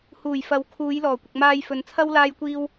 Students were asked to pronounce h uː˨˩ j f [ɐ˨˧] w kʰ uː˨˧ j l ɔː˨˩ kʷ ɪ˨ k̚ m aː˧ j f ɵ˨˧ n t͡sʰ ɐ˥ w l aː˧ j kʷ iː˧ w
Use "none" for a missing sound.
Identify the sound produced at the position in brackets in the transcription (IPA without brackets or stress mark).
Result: ɐ˨˥